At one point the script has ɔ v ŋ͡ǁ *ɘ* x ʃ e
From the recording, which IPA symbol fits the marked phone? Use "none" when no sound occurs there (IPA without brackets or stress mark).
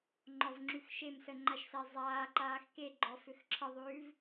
ʉ